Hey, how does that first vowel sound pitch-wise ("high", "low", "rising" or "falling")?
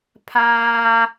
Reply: high